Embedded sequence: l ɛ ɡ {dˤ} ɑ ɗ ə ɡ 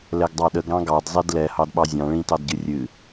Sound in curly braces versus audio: correct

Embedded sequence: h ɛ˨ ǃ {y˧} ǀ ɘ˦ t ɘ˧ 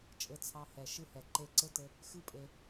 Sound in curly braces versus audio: incorrect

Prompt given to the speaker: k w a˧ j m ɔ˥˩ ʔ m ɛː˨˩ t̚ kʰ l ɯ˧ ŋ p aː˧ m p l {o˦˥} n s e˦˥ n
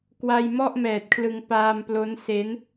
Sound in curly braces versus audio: correct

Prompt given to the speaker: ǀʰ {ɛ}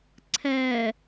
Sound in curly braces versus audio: incorrect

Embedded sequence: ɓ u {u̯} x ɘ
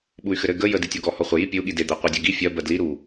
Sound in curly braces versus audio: incorrect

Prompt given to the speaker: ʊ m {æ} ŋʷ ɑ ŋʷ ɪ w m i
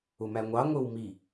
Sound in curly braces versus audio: correct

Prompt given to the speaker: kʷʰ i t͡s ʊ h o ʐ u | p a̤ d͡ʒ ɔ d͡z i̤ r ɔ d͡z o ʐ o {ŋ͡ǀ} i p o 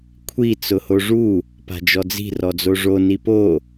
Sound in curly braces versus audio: incorrect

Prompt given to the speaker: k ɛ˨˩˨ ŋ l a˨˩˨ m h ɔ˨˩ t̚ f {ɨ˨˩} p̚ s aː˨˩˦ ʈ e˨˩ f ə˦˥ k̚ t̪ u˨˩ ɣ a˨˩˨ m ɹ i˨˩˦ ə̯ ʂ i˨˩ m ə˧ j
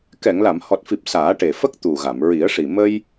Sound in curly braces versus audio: incorrect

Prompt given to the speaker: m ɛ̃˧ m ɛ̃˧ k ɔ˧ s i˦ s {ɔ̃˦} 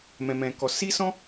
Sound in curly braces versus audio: correct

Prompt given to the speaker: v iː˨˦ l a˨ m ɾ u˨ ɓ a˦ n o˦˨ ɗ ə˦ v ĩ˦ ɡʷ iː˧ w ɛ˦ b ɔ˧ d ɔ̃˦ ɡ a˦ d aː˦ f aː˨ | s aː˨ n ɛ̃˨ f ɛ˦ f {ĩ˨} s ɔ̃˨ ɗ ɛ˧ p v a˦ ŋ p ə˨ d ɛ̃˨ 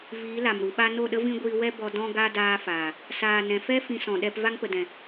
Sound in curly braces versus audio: incorrect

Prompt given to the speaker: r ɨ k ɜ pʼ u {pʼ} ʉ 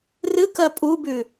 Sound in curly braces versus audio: incorrect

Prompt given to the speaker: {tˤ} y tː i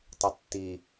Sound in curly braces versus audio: correct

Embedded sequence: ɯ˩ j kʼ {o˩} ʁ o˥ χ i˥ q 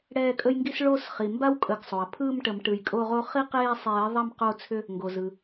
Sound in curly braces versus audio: incorrect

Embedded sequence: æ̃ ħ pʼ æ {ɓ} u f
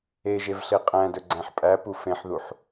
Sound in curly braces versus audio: incorrect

